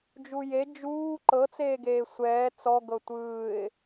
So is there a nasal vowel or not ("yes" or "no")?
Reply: no